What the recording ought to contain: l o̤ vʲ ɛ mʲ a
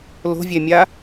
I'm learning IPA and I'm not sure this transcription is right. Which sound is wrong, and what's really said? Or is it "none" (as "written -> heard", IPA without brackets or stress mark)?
none